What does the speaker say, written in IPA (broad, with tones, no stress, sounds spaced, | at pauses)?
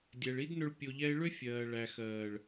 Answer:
dʲ ɛ˨ ɭ i˦ d n ʏ˧ ɭ pʲ o˧ ʎ ɛ˦ ɪ̯ ɭ ʏ˦ fʲ ɜː˨ ɭ æ˨ x ɜː˨ ɭ